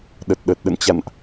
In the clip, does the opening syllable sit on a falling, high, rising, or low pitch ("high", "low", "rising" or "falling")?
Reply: low